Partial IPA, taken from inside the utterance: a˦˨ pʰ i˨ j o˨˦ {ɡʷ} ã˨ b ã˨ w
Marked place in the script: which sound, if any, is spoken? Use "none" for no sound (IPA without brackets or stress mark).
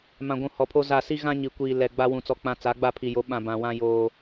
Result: ɓ